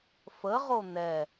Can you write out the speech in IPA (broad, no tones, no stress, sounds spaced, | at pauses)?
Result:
f ə ʁ o n̪ ɛ